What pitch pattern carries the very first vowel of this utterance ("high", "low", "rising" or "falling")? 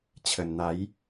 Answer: low